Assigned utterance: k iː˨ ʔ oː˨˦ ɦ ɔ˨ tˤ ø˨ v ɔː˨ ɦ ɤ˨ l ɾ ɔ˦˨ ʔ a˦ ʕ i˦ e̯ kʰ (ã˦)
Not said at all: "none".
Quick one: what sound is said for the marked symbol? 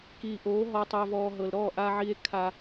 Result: a˦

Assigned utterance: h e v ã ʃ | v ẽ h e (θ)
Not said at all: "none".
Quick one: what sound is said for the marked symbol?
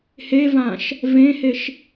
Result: ʃ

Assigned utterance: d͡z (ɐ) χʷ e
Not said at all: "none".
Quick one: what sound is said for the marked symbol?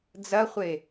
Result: ɐ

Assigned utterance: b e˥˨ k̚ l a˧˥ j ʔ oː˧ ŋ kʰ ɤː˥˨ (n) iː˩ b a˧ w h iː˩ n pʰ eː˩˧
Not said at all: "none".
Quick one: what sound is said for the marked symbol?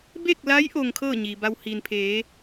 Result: ɲ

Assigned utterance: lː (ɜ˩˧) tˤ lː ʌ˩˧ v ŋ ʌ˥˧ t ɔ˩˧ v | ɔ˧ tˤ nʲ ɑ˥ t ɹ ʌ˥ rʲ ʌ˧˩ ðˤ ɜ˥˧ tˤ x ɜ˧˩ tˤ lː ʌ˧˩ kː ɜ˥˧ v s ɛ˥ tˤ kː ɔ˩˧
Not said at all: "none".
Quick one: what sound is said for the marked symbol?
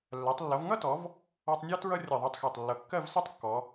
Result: ɜ˩˧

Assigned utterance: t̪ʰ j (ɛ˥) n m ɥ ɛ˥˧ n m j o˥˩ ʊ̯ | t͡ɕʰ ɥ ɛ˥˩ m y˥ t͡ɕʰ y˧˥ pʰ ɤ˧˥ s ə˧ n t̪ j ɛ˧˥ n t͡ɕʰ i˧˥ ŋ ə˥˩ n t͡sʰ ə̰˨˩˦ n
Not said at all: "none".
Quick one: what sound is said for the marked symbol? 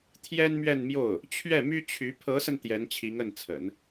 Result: ɛ˥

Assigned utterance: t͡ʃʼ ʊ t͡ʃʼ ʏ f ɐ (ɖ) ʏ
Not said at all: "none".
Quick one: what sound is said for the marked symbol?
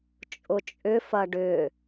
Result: ɖ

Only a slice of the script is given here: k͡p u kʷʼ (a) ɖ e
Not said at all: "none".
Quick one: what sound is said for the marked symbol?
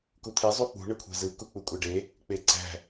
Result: æ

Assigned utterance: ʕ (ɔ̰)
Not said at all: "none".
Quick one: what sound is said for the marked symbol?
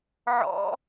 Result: ɔ̰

